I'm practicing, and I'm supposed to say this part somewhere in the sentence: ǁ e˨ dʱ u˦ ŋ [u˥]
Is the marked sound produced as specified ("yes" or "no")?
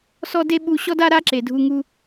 yes